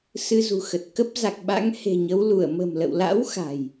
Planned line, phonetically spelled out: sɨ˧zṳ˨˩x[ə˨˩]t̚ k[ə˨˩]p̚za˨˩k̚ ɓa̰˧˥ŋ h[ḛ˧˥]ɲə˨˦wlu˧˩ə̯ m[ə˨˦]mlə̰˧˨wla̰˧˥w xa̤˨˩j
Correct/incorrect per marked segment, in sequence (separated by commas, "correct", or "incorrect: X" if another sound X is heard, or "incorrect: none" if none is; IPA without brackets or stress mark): correct, incorrect: ə˦˥, incorrect: e̤˨˩, incorrect: ə̤˨˩